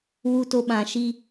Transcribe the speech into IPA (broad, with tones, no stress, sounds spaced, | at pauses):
w u˦ t o˦ ɓ ã˧ ʃ i˦